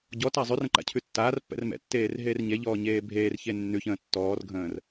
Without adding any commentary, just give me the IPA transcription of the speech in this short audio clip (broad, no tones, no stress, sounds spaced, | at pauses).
ɟ ɔ t a zˤ ʉ r ə̃ ǃ a̰ cʰ ʉ tː aː r pː ɛ̰ r m ɛ̰ tː eː r ɦ eː r ɲ e ʎ ɔː ɲ eː bʱ eː r ç e nː ʉ ç ə̃ː tː ɔː r ɡʱ ə̃ː r